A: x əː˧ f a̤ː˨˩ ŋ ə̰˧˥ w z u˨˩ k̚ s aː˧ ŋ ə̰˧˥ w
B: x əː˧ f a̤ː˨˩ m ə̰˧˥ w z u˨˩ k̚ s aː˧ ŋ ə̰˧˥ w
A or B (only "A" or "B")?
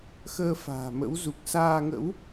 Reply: B